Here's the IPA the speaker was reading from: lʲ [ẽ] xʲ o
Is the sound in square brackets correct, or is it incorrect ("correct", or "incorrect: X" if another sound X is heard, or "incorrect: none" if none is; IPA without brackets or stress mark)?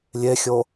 incorrect: e